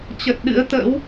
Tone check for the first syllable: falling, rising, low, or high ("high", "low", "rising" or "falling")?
low